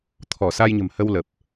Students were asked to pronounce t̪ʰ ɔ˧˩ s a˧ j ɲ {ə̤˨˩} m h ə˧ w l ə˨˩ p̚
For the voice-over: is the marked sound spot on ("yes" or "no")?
yes